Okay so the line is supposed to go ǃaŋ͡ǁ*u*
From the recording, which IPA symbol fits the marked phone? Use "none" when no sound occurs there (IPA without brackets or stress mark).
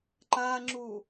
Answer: u